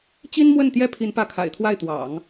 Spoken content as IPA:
t͡ɕ i˥ n m w ə˥˩ n t̪ j ɛ˥ pʰ i˧˥ n p ä˧˥ kʰ a̰˨˩ ɪ̯ t̪ʰ w a˥˩ ɪ̯ t̪ w ɑ̰˨˩˦ ŋ

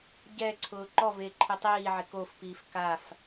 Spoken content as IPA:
ɟ ɛ ǀʰ ʊː ǃ ɔ v e ǃʰ i tˤ iː ʕ ɪ k o f p iː f k a f

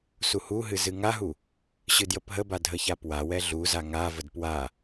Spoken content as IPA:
s u h u ɦ ɨ z ɨ ŋ a ɦ u | ɕ ɨ d j ə p ɦ ə b a dʱ ə ç a p w a w ɛ ɮ u z a ŋ a v ə d p w a

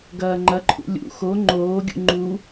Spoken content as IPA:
ɡ ɐː ŋ͡ǃ ɐ ǃʰ ṵ lʲ ṵ x o ŋ͡ǃ oː ɡʲ ṵ ŋ͡ǃ u

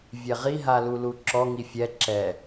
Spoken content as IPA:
vʲ ɛ ʁ i ɦ a l u l u ǁ ɔ ŋ i fʲ ɛ ǁ ɛ

